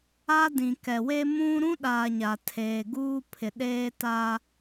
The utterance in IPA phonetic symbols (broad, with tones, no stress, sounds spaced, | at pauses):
a˦ d ĩ˨ k ɛ˨ w e˦ m ũ˦ ɾ ũ˦ ɗ aː˨ ɲ a˨ tʰ eː˨ ɡ uː˦ pʰ ɪ˨ ɗ eː˦ t a˦